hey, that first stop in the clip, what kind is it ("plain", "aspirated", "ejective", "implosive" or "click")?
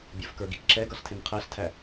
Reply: plain